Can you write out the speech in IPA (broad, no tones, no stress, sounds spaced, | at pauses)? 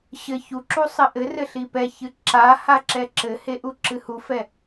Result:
ɕ ɘ ç u ǁ u sˤ ɘ ʔ ɘ r ɘ ɬ i p ɛ ç ɨ ǁ a h a ǁ ɛ ǁ ɘ h e ʔ u ǁ ɨ h u f ɛ